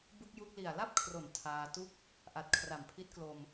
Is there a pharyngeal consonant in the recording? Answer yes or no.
no